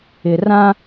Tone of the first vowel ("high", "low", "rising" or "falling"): low